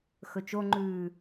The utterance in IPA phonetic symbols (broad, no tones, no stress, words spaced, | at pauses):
xɵt͡ʃoŋ͡ǃʉː